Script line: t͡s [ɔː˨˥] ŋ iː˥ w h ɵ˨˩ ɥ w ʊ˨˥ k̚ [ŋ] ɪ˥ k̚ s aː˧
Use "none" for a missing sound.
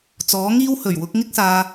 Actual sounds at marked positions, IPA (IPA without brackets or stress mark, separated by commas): ɔː˨˥, ŋ